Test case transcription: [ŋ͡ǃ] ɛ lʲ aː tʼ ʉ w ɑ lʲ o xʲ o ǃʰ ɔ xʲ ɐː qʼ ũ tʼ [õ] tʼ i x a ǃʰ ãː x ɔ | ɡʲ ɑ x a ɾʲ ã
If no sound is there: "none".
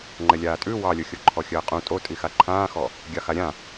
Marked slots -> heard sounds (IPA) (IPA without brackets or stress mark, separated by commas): ŋ͡ǃ, o